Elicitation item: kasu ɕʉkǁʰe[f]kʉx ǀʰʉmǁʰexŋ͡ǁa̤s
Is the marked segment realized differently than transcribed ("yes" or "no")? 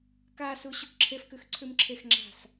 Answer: no